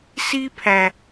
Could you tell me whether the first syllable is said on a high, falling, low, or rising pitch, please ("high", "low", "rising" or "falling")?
high